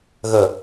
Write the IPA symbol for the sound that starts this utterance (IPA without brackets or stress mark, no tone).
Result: ɣ